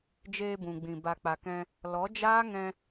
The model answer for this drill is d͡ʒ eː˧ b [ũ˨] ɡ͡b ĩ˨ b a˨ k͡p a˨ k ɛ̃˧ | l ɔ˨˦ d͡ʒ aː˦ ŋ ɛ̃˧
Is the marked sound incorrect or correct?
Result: correct